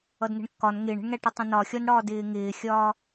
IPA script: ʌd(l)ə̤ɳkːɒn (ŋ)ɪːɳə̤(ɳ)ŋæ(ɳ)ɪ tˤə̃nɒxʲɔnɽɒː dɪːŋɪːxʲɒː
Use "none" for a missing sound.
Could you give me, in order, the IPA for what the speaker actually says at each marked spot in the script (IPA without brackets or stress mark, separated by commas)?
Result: n, ŋ, ɳ, ʈ